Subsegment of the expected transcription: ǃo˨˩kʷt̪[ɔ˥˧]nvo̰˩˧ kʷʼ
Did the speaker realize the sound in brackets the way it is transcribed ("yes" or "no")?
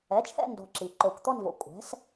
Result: yes